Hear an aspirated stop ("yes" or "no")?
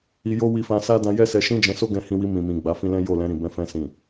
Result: no